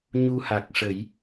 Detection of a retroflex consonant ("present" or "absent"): present